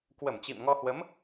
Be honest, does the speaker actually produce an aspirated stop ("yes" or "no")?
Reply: no